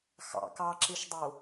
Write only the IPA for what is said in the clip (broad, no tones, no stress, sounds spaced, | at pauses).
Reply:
x ɑ̰ k ɑ ǁ i ʃ dˤ u